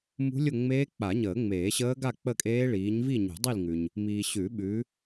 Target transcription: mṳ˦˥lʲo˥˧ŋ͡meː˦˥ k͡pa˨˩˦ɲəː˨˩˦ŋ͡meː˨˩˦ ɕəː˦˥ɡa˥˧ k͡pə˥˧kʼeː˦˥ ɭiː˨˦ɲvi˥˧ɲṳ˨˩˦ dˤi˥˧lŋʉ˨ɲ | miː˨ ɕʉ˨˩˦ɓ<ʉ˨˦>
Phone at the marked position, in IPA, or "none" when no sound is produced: ʉ˨˦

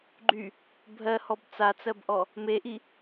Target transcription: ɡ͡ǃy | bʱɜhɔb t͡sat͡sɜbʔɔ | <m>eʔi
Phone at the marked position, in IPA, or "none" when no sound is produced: m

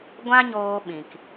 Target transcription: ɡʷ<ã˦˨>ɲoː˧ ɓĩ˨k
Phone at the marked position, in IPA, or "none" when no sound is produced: ã˦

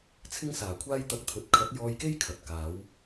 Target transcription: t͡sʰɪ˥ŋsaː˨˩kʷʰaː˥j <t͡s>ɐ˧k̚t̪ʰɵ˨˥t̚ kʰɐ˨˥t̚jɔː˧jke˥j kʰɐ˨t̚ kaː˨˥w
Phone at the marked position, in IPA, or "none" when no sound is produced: t̪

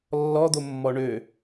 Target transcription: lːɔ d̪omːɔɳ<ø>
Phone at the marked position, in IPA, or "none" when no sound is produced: ø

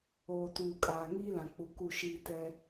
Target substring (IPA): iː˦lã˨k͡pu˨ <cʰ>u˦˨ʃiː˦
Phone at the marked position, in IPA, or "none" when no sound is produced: k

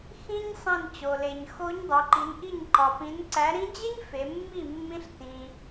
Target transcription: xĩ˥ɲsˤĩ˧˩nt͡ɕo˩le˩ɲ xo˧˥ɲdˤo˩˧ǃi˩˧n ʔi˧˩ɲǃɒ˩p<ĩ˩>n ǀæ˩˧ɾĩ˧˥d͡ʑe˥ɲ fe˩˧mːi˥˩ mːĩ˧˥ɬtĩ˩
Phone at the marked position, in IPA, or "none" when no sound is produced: ĩ˩˧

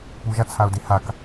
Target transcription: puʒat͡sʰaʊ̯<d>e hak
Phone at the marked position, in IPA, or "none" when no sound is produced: d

